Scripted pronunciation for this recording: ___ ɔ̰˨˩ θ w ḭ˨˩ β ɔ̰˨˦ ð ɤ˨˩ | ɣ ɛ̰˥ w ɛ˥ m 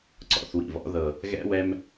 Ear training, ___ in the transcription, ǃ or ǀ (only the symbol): ǀ